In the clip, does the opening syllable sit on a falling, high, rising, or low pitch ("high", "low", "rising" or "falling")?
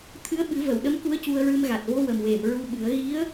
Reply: rising